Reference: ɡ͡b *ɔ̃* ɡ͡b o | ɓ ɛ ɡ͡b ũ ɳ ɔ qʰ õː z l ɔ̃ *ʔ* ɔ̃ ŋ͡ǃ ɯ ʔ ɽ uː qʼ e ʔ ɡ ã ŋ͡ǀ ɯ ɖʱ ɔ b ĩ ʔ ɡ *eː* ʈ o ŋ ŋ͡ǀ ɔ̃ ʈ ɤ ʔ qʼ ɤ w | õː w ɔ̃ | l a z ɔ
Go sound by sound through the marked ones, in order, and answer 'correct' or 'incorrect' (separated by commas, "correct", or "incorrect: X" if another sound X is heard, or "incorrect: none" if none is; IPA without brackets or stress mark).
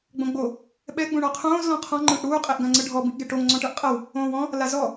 incorrect: õ, incorrect: qʰ, incorrect: e